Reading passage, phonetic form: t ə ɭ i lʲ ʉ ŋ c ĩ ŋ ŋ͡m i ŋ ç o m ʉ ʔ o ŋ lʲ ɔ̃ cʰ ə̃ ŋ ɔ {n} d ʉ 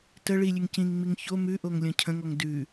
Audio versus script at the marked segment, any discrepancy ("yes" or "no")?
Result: yes